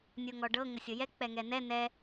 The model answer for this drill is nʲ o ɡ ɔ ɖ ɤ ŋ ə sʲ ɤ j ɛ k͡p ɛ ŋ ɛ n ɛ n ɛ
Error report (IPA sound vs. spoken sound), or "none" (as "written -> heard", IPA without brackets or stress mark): ɡ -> ŋ